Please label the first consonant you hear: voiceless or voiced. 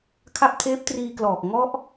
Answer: voiceless